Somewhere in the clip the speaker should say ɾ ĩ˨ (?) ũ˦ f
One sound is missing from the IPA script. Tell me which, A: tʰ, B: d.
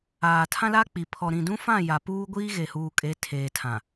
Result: B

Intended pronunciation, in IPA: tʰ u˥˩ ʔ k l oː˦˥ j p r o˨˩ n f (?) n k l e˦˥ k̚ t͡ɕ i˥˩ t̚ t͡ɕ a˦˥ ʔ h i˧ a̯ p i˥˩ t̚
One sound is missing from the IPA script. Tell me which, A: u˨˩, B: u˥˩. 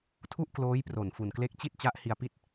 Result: A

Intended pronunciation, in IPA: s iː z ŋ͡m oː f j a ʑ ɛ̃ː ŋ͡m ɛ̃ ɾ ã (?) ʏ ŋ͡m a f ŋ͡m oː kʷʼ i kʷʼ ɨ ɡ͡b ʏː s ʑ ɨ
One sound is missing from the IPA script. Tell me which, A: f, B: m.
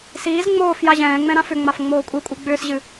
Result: A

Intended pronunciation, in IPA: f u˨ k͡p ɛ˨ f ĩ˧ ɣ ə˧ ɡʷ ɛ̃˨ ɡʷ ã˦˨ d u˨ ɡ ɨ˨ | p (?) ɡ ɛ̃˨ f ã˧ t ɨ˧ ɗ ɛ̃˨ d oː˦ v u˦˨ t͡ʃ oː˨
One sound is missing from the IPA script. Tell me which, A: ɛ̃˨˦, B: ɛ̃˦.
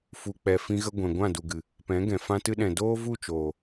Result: A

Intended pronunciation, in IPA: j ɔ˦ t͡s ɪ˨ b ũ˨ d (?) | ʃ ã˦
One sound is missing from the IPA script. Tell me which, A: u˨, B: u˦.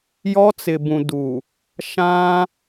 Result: A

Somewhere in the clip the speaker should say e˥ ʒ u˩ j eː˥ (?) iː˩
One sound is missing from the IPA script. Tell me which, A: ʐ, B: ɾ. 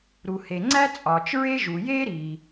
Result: B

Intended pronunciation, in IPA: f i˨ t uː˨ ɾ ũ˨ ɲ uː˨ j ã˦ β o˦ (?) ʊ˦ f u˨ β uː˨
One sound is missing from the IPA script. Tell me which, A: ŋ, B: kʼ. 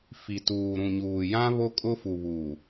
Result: B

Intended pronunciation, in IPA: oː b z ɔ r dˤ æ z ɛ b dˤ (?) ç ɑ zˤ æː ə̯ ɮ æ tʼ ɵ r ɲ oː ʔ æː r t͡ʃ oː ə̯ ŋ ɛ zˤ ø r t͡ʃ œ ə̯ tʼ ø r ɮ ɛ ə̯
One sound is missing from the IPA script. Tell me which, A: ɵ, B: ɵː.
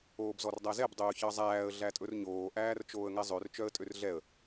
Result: B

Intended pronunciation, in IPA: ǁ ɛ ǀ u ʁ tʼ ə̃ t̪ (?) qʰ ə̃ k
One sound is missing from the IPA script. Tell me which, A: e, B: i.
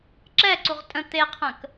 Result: A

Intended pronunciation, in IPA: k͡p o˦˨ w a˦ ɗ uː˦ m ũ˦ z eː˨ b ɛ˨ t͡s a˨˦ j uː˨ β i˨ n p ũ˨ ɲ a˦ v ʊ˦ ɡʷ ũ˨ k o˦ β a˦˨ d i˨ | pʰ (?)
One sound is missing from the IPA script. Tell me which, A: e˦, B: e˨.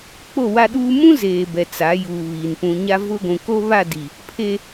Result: A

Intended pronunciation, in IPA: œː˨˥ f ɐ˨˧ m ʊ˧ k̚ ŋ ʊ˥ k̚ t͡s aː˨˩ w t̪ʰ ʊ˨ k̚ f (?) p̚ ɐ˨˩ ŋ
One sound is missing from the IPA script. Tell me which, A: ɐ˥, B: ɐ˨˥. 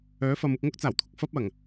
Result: A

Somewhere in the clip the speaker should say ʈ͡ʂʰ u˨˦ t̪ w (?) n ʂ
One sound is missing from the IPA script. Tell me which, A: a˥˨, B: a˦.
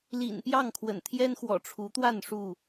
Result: A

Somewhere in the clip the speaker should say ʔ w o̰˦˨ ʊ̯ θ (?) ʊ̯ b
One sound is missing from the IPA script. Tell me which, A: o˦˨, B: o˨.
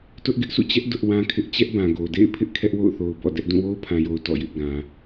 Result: B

